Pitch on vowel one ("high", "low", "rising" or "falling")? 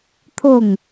falling